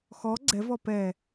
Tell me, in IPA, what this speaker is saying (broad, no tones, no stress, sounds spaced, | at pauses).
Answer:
x ɔ ɡ͡ǀ ɛ v ɔ p ɛ